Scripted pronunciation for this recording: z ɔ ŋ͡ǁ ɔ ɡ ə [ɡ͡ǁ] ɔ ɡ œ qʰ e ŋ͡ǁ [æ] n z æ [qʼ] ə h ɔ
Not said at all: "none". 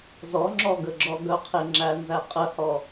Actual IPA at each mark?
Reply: ɡ͡ǁ, æ, qʼ

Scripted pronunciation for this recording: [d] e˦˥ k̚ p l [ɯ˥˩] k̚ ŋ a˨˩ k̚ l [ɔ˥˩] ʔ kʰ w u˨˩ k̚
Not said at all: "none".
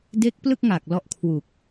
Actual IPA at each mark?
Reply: d, ɯ˥˩, ɔ˥˩

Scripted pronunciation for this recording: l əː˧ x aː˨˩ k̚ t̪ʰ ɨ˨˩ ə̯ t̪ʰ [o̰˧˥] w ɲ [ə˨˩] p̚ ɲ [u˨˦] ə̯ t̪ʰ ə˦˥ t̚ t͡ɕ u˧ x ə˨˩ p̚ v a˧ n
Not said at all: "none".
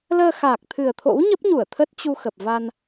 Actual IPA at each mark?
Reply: o̰˧˥, ə˦˥, u˧˩

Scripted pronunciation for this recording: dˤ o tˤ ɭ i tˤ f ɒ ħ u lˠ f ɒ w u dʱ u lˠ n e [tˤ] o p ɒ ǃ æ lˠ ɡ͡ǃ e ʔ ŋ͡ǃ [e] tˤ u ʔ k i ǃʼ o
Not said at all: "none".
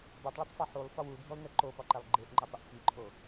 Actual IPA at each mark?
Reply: ǃ, e

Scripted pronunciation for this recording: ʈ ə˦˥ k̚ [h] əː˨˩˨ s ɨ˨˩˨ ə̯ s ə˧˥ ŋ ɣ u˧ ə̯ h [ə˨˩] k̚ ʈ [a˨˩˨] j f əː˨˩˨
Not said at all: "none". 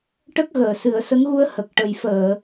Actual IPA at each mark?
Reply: ɣ, ə˨˩, ə˨˩˨

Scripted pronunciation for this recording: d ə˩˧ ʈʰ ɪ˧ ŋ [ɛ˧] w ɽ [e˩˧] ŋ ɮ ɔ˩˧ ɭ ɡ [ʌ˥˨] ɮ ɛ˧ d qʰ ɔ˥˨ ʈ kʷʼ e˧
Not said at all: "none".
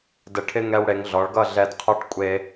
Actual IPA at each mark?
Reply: ɛ˧, e˩˧, ʌ˥˨

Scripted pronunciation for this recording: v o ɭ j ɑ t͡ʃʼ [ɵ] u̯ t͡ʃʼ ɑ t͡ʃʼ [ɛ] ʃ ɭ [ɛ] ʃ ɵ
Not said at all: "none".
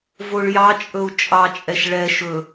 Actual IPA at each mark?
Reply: ɵ, ɛ, ɛ

